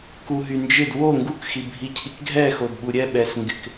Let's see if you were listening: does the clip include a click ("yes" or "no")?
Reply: no